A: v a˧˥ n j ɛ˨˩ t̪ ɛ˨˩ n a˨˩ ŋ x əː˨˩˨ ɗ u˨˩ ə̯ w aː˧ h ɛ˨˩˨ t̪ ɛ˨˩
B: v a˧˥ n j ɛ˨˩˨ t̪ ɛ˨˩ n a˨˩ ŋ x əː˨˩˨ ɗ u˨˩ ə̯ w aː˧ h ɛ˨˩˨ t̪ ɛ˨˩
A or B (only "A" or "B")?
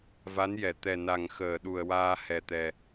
B